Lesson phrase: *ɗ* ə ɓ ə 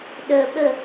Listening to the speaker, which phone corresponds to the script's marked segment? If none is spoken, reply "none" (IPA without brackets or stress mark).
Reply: ɗ